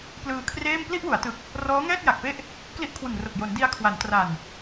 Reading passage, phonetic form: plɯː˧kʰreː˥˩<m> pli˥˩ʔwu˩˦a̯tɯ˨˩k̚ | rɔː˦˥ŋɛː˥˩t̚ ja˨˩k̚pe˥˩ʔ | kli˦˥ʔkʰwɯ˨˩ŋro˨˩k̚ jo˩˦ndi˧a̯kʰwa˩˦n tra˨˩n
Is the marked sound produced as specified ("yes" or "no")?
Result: yes